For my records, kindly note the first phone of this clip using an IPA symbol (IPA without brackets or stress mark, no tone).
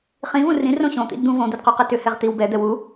χ